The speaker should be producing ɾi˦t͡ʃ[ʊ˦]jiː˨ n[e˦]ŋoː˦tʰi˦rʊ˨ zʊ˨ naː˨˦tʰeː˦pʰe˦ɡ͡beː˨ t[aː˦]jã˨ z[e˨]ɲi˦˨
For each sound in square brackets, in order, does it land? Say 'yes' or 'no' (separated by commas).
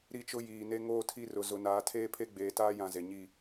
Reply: yes, yes, yes, yes